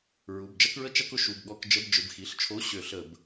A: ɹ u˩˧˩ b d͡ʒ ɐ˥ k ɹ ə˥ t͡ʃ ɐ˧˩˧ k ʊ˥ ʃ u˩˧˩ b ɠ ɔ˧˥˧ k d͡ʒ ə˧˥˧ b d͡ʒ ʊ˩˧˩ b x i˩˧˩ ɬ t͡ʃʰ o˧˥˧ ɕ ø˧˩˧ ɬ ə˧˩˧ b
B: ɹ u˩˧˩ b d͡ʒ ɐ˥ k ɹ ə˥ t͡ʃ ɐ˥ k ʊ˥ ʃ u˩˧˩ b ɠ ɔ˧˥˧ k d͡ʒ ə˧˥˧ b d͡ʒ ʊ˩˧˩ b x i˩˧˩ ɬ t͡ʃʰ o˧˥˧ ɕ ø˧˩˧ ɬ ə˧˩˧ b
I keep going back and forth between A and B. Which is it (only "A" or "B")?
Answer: B